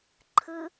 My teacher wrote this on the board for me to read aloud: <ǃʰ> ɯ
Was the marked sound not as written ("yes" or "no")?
no